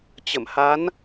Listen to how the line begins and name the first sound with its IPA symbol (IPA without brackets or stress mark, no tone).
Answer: t͡ɕ